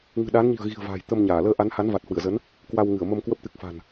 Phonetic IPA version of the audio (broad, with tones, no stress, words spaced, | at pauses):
ŋɨ̤˨˩ ɗaː˨˦nɲi̤˨˩ə̯ɣi̤˨˩ə̯ va̤ː˨˩jt̪ə˧mɲaː˧˩ ləː˧ʔa˨˦nha˨˦n vaː˨˩t̚hwɨ˧˩ə̯zə˨˦n | kwa˧wŋɨ˧˩ə̯mə˧mkwə˦˥p̚ t̪ɨ˨˩k̚fa̤˨˩n